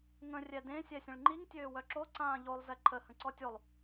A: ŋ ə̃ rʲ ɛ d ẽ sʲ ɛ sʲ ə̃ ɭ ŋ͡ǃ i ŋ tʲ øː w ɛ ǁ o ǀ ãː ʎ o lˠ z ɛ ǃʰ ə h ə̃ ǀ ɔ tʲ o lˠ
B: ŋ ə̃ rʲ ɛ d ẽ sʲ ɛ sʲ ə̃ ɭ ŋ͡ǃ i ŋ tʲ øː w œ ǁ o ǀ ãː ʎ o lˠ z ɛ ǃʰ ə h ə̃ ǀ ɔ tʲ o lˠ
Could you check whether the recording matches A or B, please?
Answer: B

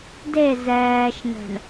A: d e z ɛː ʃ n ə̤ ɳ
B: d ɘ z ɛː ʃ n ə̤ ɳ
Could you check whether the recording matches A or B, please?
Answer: A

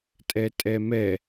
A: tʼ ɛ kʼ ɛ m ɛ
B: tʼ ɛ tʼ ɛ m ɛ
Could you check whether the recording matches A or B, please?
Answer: B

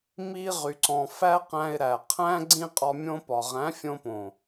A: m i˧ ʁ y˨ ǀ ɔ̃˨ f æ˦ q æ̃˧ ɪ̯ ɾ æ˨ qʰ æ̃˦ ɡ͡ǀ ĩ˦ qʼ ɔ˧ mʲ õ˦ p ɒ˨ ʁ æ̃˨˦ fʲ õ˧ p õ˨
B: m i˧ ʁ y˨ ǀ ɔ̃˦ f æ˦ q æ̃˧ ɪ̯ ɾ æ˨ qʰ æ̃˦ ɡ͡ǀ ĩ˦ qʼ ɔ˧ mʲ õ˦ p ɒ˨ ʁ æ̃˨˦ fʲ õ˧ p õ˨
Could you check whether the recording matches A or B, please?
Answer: A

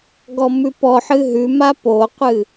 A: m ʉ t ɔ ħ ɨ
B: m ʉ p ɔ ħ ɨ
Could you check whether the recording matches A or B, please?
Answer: B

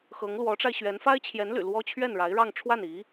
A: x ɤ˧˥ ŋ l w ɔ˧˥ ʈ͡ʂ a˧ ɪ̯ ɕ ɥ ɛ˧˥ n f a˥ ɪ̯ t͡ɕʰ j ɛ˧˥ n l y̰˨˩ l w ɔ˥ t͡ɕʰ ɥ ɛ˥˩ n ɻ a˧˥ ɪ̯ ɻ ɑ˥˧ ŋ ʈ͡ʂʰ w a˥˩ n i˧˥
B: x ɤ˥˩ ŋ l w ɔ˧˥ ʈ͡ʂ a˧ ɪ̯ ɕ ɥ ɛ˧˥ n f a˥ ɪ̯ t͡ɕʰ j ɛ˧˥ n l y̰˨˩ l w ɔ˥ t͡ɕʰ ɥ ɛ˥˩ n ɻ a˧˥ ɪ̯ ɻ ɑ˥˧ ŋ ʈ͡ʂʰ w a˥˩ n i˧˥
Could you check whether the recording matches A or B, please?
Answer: A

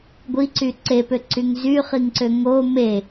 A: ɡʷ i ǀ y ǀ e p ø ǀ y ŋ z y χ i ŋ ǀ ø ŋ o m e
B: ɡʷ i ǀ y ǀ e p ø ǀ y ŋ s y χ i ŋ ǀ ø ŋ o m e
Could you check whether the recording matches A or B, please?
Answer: A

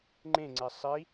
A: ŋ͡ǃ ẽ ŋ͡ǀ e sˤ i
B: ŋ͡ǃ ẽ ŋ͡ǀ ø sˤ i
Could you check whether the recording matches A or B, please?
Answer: A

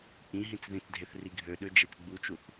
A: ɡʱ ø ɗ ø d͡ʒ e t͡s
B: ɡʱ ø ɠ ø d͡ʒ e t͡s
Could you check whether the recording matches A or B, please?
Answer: A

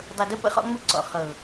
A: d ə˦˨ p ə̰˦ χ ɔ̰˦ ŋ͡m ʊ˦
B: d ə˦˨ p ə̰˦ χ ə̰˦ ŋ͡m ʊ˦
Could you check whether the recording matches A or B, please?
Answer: A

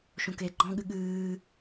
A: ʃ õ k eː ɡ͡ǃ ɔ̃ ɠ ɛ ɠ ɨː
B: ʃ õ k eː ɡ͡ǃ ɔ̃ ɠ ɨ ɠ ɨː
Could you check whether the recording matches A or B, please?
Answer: B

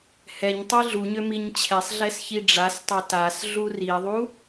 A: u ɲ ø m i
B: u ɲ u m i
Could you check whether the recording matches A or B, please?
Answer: A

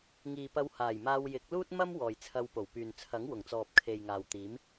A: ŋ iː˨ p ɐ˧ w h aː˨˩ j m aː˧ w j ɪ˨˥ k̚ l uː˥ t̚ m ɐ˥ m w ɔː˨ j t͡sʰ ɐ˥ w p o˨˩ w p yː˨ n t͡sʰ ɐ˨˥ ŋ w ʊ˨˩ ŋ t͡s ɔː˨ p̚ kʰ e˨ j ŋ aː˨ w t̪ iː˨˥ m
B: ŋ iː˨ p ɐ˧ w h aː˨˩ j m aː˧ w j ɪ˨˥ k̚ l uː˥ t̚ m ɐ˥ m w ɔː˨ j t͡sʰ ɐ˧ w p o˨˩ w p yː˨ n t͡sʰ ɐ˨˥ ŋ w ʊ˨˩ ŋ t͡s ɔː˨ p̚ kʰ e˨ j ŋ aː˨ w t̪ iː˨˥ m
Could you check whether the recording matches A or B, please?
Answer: B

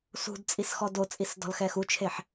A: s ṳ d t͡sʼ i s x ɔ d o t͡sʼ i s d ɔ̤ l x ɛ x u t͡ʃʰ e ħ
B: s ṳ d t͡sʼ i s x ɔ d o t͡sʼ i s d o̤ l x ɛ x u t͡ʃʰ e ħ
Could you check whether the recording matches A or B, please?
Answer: A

